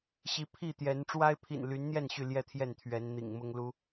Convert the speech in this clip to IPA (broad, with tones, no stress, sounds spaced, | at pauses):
ɕ i˨˦ pʰ i˥˨ t̪ j ɛ˨˦ n ʈ͡ʂ w a˦ ɪ̯ pʰ ḭ˨˩ n l y˨˦ n n̪ j ɛ˥˨ n ɕ y˥˨ l j ɛ˥˨ t̪ʰ j ɛ˥˨ n t̪ʰ ɥ ɛ˨˦ n n̪ ḭ˨˩ ŋ m ʊ˦ ŋ l u˦